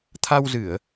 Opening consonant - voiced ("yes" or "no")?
no